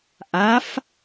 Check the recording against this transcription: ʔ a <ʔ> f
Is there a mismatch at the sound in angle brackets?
yes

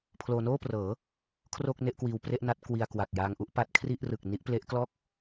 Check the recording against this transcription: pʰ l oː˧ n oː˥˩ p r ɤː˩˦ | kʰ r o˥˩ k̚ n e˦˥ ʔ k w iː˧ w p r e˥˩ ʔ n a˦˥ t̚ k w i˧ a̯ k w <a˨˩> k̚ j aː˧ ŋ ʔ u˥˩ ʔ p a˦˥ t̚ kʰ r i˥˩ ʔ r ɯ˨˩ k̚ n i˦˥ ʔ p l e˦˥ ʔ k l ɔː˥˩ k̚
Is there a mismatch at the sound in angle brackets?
no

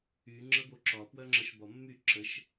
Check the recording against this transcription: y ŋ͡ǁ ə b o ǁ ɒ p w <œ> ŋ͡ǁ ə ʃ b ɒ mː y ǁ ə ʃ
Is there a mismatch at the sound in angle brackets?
no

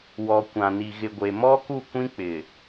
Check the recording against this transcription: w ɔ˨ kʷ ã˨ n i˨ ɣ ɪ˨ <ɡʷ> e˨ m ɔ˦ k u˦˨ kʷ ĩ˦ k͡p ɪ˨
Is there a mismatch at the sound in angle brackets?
no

